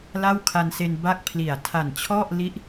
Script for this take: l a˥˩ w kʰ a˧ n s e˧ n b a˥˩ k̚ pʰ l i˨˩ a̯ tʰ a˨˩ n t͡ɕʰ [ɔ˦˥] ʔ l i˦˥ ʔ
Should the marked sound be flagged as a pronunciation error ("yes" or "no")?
yes